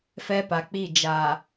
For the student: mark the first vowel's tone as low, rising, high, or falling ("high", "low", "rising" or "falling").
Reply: high